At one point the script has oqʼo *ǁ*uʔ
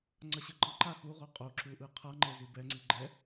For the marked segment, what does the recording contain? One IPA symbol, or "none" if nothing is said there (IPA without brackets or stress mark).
ǁ